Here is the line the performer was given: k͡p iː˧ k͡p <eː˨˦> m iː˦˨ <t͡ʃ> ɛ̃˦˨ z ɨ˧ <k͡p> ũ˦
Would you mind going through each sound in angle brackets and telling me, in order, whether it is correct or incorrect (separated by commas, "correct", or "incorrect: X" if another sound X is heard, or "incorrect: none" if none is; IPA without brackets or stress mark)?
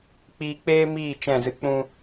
incorrect: eː˦, correct, correct